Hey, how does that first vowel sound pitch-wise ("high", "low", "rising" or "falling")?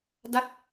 falling